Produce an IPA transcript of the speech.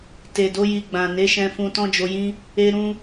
t e˨ d o˨˦ j i˧ ɡ͡b ã˨ n e˨˦ ʃ ɛ̃˧ f ũ˧ t ɔ̃˦ d͡ʒ o˧ j ĩ˦ | e˦ ɾ ũ˦

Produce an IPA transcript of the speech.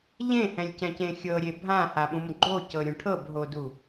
ʎ ẽ h ɛ̃ lʲ c ɛ̃ c ẽ xʲ ɤ ɾʲ e bʱ ã h a ɓ ũ m ɡ͡ǃ o c ɤ ɾʲ ũ ʈʰ ɤ b ɦ o d u

